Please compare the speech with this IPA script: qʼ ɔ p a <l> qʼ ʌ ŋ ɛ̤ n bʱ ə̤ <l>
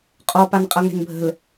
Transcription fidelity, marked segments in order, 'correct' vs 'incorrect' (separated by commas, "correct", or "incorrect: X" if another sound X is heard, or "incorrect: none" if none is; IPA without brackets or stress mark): incorrect: n, correct